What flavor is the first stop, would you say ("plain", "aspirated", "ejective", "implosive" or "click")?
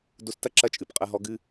plain